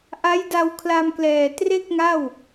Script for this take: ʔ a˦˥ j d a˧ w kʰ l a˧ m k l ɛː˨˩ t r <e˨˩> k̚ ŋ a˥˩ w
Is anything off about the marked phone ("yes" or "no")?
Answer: yes